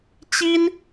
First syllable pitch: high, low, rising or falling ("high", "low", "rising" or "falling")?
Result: high